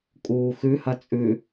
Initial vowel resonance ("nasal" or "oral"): oral